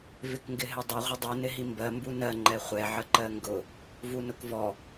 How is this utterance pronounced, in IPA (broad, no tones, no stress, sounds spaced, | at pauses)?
v ɪ k ŋ ɡ ɪ ɦ ɪ dˤ ʌ ʁʷ ɪ dˤ u n ɪ ɦ i m b ɜ m b u n ɜ ŋ͡ǃ ɛ χʷ ɛ ʕ ə ǃ ɜ ŋ ɡ ʊ | v u n ʊ k v ɔ